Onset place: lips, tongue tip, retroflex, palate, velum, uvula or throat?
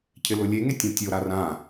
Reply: palate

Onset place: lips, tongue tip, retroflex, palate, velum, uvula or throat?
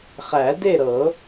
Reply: uvula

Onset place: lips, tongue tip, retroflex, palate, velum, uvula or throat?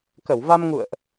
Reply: velum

